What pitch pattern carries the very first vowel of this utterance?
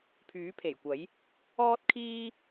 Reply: rising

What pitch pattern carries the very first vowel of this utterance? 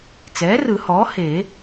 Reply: rising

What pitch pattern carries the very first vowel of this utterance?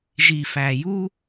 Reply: low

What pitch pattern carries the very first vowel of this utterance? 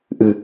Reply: low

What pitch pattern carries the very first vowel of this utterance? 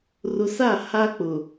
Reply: low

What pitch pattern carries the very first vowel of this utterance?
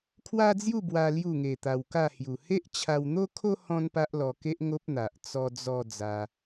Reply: high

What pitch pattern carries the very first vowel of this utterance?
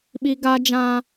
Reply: high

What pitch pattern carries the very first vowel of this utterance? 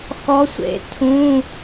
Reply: rising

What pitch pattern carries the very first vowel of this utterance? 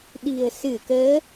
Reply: low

